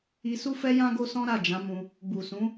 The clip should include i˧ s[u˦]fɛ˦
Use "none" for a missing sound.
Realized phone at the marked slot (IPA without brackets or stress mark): u˦